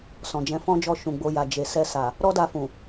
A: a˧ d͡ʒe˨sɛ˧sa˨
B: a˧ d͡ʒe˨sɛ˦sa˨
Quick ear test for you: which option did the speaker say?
A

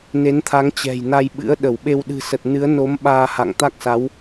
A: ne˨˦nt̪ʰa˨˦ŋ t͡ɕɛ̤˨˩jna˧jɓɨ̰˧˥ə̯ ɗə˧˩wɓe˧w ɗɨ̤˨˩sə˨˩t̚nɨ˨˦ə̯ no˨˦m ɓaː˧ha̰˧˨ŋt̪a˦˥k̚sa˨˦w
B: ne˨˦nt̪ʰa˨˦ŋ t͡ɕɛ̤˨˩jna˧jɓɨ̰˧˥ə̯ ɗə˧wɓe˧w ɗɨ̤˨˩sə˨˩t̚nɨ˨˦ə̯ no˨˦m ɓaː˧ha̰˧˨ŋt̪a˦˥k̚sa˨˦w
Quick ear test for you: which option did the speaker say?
A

